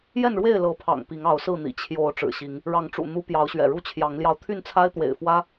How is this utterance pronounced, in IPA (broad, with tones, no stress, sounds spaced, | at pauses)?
j ɛ˥˨ n ɻ w e˥˨ ɪ̯ l ɤ˨˦ pʰ ɑ̰˨˩ ŋ p i˨˦ ŋ ɑ˨˦ ʊ̯ s ɹ̩˥˨ n̪ ḭ˨˩ t͡ɕʰ j o˨˦ ʊ̯ ʈ͡ʂ ɻ̩˨˩ ɕ i˨˦ ŋ | ɻ ɑ˨˦ ŋ ʈ͡ʂ ṵ˨˩ n̪ u˦ p j ɑ˨˦ ʊ̯ ɕ ɥ ɛ̰˨˩ ɻ u˦ t͡ɕʰ j ɑ˨˦ ŋ l j ɑ˧ ʊ̯ t̪ʰ y˥˨ n t͡sʰ a˦ ɪ̯ t̪ w ḛ˨˩ ɪ̯ f w ä˦